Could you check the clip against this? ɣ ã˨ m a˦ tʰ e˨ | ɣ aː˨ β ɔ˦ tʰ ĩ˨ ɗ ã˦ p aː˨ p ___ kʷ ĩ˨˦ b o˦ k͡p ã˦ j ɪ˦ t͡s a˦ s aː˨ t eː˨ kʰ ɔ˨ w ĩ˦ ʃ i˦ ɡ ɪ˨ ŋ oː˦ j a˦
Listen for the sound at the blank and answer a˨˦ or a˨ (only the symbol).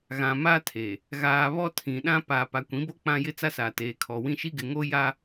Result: a˨